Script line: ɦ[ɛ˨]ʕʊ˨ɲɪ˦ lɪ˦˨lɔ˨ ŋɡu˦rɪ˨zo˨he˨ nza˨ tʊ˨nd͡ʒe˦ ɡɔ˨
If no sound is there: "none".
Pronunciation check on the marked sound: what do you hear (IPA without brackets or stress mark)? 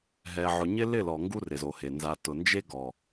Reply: ɛ˨